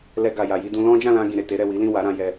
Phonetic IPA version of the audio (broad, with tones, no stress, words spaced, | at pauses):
lɛ˧ɡa˨ja˨ji˧ dũ˧ lɔ̃˦ d͡ʒã˦˨lã˧ ɡĩ˨ɾe˨te˨˦ɾɛ˦˨ wi˨˦lĩ˦˨ wa˨˦ɾã˧ jɛ˧